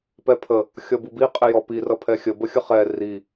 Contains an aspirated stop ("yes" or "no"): yes